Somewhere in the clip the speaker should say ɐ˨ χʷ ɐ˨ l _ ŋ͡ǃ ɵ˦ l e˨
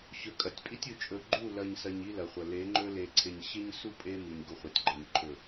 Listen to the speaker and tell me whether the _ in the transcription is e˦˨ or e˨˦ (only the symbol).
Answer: e˨˦